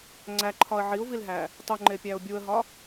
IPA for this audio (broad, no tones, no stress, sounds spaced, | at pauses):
ŋ͡ǀ æ ǃʰ ɒ ə̯ ʕ i ʊ̯ v i l ɦ æ | tˤ u ŋ͡ǃ e pʲ æ ʊ̯ bʲ u ə̯ ɦ ɒ